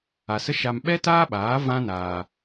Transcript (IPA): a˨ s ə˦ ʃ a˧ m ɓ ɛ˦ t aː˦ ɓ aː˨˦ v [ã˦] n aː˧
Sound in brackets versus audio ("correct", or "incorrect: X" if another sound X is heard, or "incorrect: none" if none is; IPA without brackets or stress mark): correct